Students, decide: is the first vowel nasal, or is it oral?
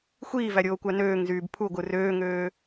oral